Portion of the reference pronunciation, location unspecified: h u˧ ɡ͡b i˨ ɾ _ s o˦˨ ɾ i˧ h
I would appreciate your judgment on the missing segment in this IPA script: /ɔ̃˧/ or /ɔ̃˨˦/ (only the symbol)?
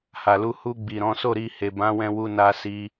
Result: ɔ̃˨˦